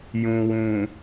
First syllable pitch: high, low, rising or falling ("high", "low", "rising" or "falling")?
low